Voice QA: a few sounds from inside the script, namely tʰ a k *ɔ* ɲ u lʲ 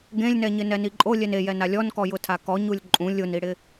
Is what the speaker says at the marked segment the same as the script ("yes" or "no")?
yes